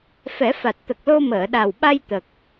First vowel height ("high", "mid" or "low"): mid